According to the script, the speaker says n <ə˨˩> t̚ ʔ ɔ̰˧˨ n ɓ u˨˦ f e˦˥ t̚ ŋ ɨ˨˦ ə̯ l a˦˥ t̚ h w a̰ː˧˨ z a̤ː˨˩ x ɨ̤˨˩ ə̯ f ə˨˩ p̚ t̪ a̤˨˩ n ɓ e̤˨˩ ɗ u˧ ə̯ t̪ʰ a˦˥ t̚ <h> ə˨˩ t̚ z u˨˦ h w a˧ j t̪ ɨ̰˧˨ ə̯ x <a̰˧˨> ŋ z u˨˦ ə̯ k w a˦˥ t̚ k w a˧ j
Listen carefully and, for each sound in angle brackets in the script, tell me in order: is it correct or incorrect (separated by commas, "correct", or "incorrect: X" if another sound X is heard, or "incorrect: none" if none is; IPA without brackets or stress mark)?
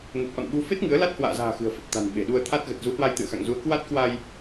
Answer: correct, incorrect: ɣ, correct